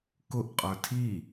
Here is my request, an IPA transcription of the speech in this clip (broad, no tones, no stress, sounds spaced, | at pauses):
k ʊ ʔ qʼ ə˞ tʰ i